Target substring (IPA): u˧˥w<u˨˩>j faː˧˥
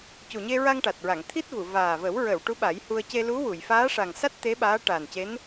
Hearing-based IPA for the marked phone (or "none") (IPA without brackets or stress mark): u˨˩˨